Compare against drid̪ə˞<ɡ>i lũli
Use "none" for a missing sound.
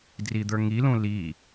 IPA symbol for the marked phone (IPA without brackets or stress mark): ŋ